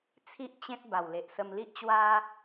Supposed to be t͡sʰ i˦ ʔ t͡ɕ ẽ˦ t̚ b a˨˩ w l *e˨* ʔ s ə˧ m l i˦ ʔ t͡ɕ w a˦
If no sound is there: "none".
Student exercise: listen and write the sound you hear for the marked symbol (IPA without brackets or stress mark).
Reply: e˨